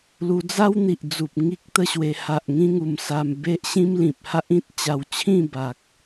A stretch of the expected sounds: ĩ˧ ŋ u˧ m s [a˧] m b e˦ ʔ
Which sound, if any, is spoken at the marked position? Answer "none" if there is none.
a˧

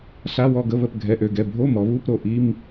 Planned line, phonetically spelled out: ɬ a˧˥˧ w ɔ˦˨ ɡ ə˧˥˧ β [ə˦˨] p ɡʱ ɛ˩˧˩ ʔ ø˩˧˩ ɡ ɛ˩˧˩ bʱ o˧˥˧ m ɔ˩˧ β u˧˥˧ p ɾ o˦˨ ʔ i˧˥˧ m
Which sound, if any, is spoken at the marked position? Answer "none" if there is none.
ə˦˨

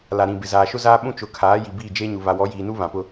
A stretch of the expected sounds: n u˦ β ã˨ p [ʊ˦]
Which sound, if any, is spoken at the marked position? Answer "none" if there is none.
ʊ˦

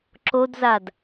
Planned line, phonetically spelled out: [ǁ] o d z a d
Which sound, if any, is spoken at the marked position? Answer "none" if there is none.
ǁ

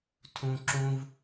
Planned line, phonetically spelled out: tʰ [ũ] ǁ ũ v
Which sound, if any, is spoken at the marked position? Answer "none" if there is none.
ũ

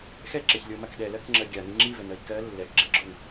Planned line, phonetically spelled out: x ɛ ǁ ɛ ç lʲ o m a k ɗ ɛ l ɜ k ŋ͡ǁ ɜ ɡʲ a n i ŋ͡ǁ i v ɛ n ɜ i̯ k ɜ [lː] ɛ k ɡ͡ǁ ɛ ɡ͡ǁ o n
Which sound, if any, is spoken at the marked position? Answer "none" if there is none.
lː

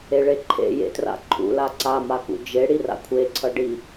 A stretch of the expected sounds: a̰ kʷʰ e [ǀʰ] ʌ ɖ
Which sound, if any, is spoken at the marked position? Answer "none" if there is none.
ǀʰ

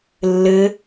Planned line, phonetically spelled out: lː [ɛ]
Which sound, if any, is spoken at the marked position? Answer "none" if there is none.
ɘ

